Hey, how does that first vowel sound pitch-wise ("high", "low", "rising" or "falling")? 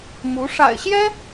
rising